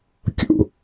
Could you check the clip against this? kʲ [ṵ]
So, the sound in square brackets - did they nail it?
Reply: yes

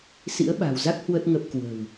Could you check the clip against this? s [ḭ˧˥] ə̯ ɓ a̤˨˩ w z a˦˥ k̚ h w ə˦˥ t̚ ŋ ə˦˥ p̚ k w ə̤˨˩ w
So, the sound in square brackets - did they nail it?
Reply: yes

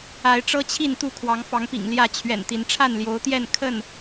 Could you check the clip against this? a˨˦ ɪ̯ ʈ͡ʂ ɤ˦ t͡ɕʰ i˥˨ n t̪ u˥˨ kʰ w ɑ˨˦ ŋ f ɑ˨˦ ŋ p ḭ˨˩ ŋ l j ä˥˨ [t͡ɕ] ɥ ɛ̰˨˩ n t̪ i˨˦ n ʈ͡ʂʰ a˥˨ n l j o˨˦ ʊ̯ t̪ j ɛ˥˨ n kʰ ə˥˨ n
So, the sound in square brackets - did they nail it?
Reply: no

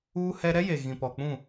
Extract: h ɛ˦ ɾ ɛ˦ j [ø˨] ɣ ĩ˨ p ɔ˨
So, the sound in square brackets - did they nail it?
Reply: no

